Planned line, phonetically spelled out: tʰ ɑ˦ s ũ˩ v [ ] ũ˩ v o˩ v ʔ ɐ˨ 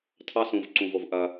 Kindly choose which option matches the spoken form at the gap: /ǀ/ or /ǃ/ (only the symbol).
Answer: ǀ